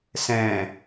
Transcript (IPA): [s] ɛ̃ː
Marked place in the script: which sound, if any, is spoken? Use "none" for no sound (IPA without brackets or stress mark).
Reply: s